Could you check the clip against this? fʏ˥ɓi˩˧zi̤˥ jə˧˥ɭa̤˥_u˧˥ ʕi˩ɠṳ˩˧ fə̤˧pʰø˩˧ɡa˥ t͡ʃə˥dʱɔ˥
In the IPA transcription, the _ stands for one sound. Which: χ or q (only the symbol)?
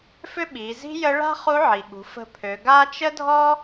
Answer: χ